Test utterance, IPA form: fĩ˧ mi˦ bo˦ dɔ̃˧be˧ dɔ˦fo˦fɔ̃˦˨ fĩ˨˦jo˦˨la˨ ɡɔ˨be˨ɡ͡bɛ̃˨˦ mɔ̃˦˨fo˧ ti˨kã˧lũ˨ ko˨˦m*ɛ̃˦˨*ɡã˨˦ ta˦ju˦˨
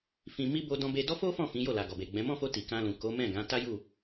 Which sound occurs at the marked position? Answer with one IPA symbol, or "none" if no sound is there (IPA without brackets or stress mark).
ɛ̃˦˨